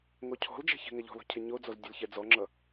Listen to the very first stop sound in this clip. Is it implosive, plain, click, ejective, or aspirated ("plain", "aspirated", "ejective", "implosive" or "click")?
aspirated